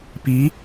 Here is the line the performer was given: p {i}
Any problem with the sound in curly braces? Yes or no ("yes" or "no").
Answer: no